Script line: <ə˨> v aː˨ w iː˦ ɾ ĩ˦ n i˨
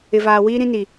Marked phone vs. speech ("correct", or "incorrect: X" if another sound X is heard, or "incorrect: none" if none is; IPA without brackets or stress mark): incorrect: ɪ˨